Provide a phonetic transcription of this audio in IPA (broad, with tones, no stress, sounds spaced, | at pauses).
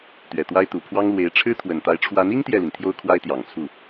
t̪ ɥ ɛ˨˩ t̪ w a˥ ɪ̯ t̪ u˨˩ pʰ w ɑ˥ ŋ l w e˧˥ ɪ̯ ʈ͡ʂʰ ɻ̩˥ t̪ʰ w ə˨˩ n t̪ a˧˥ ɪ̯ ʈ͡ʂʰ w a˧˥ n i˥ ŋ t̪ j ɛ˥˩ l i˩ n t̪ʰ j o˥ ʊ̯ kʰ w a˥ ɪ̯ t̪ j ɑ˨˩ ŋ t͡sʰ u˥˩